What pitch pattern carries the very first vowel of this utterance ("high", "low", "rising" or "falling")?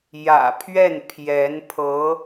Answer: low